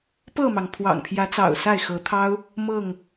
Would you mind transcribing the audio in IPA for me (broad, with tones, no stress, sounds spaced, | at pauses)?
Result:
p ɤ˥˨ m ɑ˩ ŋ pʰ w ɑ̰˨˩ ŋ pʰ j ä˨˦ t͡s ɑ̰˨˩ ʊ̯ s a˥˨ ɪ̯ x ɤ˨˦ t̪ʰ ɑ˦ ʊ̯ | m ɤ˥˨ ŋ